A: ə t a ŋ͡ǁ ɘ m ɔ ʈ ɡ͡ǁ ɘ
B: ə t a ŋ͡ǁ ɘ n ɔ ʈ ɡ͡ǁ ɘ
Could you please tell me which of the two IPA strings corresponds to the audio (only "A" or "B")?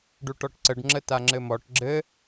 A